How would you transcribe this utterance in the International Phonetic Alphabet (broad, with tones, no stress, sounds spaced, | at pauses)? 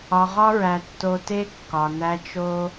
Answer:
ɒ˨ ʁ ɒ˧ ɹ æ˨ tː o˨ t e˧ kː ɒ˨ n æ˧ t͡ʃ o˦